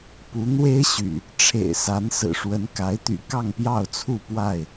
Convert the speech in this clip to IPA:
pu˨˦n̪we˦ɪ̯ɕy̰˨˩ | ʈ͡ʂʰḛ˨˩ɪ̯sa˨˦n sɹ̩˨˩ʂwə˨˦nka˨˦ɪ̯t̪y̰˨˩ kɑ˥˨ŋpjɑ˥˨ʊ̯t͡sʰu˥˨pwa˥˨ɪ̯

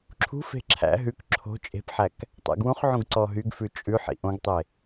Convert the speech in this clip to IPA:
ǁʰṳfe̤ ǁʰæ̰ ɦʉk ǁʰo̤ t͡ʃʼe̤pħæk | tˤæ̰ɡwũχʕũɡ ǀɔɦyɡfʉ t͡ʃʼʉ ħḭʔõɡtˤe

